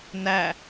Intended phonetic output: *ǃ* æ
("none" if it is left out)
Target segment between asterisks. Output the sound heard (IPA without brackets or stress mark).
n